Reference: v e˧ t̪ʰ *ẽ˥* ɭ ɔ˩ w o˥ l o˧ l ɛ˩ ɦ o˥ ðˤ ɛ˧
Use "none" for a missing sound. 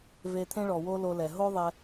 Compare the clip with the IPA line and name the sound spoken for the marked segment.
ẽ˥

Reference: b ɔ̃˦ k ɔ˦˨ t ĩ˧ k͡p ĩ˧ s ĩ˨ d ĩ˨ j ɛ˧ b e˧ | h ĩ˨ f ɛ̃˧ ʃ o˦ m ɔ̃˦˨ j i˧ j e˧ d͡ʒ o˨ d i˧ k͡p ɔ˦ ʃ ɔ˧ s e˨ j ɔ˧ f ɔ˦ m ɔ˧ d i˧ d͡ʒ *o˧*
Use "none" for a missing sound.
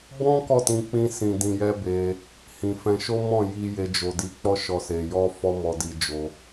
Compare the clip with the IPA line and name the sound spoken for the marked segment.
o˧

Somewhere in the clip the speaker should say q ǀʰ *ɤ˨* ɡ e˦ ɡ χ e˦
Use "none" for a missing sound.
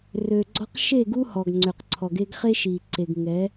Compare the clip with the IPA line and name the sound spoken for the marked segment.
ɔ˨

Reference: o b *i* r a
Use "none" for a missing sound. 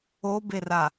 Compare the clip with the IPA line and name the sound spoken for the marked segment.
e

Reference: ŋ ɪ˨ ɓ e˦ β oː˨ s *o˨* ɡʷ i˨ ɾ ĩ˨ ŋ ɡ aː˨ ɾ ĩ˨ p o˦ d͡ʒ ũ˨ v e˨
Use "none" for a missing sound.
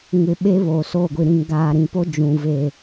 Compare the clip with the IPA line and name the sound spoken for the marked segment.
o˦˨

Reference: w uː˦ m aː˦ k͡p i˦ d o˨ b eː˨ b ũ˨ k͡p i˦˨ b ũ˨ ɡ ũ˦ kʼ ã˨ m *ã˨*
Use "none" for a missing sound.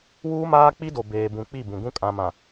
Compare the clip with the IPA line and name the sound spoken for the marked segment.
ã˨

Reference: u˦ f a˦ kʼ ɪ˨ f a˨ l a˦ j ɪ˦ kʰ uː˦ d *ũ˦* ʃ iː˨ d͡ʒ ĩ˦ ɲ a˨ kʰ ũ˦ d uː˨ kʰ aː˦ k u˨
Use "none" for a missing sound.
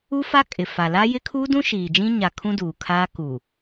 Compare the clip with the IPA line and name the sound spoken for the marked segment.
ũ˦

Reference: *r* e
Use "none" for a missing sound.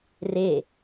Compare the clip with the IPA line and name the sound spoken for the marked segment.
r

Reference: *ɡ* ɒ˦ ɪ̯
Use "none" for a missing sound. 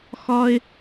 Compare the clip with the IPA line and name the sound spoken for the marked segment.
x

